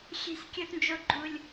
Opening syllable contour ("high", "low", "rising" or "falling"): high